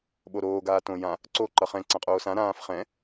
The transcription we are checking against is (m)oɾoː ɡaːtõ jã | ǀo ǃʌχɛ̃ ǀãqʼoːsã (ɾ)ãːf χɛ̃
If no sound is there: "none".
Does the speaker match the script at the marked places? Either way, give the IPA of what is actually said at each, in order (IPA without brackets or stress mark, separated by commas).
ɓ, ɾ